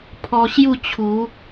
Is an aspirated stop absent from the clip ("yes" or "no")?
no